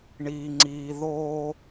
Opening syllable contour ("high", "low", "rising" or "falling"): low